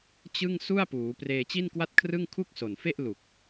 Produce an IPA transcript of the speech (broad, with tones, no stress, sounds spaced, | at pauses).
t͡ɕ ɯ˥˩ ŋ s u˥˩ a̯ p uː˩˦ p r eː˧ t͡ɕ i˥˩ n k w a˥˩ t̚ kʰ r ɯ˥˩ ŋ kʰ u˥˩ k̚ s o˨˩ n f e˥˩ ʔ l u˨˩ k̚